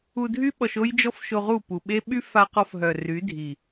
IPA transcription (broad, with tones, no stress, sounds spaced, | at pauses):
u˧ dʱ y˦ ɓ ɔ˧ ʃ o˦ j d͡ʒ ɔ˦ f ʃ o˧ ʁ u˦˨ p u˨ ɓ e˦ ɓ y˦ f a˧ q ɔ˧ f ɦ œ˨ r y˨˦ dʱ i˨